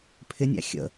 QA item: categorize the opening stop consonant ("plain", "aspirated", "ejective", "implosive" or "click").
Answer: aspirated